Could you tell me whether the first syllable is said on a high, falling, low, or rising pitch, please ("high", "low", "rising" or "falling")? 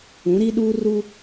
rising